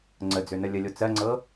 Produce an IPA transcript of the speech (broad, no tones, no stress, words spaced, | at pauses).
ŋ͡ǀəd͡zønə lʲəlʲo t͡sɜŋ͡ǀɤ